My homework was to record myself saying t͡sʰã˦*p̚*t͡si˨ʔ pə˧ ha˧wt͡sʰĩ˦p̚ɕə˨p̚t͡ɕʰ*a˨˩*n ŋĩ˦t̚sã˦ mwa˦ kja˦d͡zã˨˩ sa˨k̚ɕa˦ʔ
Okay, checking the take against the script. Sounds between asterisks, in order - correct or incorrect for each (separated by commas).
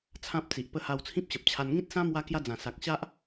correct, incorrect